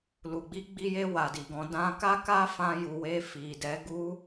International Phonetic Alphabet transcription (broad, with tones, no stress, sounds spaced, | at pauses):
l u˨ ɡ͡b i˧ ɡ͡b i˧ j e˧ w a˨ d i˨ ɡ ɔ̃˨˦ d ã˧ k a˦ k a˦ f ã˧ j u˨ w e˧ f i˨ d ɛ˨˦ ɡ u˦